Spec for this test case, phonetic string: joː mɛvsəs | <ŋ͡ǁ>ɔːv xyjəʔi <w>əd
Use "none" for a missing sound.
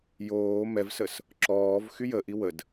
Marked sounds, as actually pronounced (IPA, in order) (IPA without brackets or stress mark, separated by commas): ǁ, w